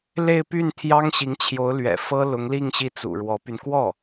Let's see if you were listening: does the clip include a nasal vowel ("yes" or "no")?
no